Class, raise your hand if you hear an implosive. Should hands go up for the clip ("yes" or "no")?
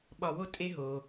yes